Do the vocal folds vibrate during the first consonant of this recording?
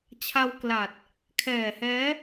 no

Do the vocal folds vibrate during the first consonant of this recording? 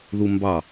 yes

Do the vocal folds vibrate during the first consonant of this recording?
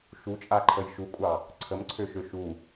no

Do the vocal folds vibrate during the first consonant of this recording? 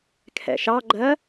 no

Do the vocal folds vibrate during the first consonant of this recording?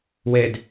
yes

